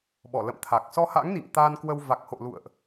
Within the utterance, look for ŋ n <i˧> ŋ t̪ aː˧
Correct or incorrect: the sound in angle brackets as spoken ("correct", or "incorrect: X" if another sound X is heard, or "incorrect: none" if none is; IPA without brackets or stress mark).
incorrect: ḭ˧˨